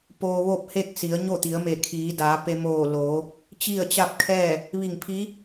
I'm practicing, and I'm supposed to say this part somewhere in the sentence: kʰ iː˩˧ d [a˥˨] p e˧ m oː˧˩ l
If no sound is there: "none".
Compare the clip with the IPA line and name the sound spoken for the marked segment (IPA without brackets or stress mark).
a˩˧